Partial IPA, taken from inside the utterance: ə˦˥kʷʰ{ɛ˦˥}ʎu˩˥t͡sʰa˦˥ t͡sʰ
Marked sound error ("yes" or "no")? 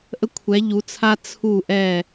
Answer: yes